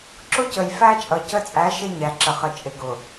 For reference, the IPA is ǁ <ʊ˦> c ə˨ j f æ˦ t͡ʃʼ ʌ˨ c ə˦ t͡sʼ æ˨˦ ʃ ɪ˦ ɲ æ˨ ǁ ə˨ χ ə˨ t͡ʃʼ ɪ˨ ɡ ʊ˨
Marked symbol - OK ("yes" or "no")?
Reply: yes